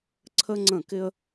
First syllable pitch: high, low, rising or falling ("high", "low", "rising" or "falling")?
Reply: high